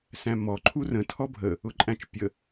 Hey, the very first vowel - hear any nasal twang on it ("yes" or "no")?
yes